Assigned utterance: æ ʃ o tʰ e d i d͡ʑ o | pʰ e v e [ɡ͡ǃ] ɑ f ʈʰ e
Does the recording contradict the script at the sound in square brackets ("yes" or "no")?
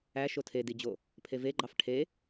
no